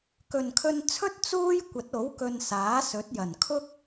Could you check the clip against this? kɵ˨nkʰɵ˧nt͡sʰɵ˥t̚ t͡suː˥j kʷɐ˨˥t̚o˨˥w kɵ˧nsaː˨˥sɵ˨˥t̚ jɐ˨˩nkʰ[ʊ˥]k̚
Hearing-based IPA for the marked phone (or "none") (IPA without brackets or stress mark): ʊ˥